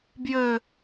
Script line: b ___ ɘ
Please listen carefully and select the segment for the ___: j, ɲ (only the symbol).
j